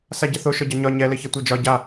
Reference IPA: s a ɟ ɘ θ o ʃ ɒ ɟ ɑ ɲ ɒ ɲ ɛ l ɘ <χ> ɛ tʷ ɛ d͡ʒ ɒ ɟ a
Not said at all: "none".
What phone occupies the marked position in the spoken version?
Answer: ç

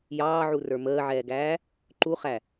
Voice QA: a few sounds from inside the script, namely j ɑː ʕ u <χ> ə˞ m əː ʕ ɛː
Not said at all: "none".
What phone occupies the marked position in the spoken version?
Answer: r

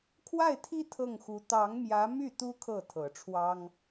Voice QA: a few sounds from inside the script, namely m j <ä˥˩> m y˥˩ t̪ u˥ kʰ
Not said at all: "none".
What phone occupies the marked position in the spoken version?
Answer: ä˧˥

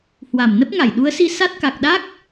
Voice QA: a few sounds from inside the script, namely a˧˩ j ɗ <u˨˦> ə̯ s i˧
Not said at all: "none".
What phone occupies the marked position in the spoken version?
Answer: u˨˦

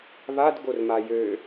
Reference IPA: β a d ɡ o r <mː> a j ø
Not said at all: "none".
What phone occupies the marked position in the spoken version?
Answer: m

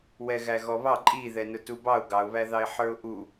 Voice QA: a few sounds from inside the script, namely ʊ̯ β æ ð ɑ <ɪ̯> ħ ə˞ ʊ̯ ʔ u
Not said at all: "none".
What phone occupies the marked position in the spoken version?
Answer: ɪ̯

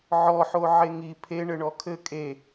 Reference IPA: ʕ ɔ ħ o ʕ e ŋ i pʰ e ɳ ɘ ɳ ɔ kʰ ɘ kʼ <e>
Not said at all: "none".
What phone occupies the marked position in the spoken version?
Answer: e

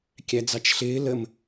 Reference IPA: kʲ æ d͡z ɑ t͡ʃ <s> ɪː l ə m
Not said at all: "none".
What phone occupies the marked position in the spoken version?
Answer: ɬ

